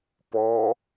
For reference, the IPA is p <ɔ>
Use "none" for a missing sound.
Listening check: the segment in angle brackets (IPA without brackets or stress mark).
ɔ